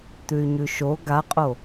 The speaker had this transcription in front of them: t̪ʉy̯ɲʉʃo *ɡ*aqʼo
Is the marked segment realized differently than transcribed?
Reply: no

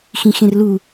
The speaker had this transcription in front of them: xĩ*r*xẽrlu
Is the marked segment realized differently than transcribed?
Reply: yes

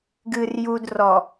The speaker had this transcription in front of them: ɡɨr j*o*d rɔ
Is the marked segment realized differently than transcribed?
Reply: yes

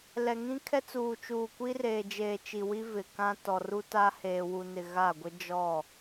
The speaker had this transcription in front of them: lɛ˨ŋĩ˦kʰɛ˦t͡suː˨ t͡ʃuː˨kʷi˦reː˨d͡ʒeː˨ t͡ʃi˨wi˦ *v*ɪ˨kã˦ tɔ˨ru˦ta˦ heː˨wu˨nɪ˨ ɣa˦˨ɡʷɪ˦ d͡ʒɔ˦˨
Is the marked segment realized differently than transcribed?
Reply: no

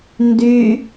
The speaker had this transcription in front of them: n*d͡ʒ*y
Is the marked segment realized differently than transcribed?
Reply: yes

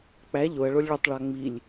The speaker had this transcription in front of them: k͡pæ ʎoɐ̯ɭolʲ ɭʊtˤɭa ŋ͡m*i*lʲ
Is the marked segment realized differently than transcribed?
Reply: no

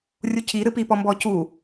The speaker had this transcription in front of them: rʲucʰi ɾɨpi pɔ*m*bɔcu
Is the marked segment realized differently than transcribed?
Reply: no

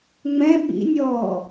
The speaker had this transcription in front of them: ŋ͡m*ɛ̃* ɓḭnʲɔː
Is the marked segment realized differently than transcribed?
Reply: no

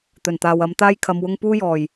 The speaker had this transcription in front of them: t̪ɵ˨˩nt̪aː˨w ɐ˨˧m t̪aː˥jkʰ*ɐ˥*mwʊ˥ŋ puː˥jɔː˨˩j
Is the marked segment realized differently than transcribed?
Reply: yes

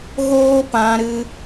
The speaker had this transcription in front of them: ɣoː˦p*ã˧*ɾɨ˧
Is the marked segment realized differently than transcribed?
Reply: no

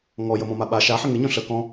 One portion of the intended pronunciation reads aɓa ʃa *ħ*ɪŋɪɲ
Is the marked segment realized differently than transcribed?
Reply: no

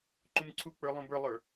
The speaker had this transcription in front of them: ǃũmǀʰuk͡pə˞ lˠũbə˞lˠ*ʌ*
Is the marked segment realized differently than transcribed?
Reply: yes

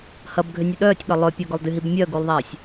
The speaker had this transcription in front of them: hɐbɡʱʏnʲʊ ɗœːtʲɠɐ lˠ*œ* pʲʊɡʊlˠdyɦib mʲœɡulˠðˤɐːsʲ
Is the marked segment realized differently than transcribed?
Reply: no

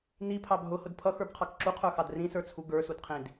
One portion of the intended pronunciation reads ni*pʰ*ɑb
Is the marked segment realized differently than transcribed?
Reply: no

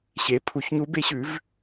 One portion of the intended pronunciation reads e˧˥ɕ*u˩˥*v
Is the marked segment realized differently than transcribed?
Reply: yes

